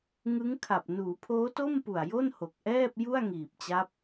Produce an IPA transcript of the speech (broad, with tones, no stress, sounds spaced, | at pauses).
ŋ ɯ˦˥ ŋ kʰ a˨˩ p̚ n uː˩˦ pʰ oː˦˥ t o˥˩ m p u˨˩ a̯ j o˥˩ n h o˨˩ k̚ ʔ ɛː˥˩ p̚ j u˥˩ a̯ ŋ iː˨˩ p̚ t͡ɕ a˦˥ p̚